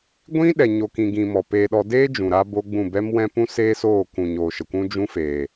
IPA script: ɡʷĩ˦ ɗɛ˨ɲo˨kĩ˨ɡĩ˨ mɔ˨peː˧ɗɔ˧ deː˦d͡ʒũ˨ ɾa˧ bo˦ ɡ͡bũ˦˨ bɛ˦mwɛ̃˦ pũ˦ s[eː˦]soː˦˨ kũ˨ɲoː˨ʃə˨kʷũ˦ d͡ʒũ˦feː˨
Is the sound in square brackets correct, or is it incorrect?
correct